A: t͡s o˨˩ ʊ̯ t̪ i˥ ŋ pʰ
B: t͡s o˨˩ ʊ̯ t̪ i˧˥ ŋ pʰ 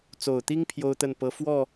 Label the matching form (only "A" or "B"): A